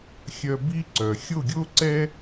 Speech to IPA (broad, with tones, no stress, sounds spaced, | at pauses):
xʲ œ˧ b i˦ ǀ œ˨ xʲ o˦˨ ɡʲ o˦ ǀ ɛ˦